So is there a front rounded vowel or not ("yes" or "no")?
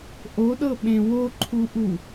no